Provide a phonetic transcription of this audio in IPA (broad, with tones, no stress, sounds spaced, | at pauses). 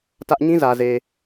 t ä˦ ʔ ɲ ĩ˦ z ä˨ z e˨